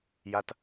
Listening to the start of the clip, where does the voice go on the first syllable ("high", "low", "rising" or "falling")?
high